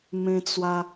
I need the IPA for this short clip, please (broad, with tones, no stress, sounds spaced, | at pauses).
m ẽ˧ t͡s w a˧